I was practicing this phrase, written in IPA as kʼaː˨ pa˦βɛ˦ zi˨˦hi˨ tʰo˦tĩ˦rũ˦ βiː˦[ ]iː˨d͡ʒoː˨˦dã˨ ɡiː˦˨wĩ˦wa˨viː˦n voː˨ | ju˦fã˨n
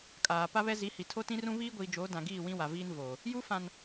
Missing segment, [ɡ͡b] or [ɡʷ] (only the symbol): ɡʷ